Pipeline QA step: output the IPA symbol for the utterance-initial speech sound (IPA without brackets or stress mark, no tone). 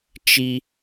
t͡ʃ